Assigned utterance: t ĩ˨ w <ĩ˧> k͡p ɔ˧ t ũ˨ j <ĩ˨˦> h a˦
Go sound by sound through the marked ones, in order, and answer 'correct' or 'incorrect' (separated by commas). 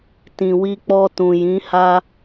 incorrect, correct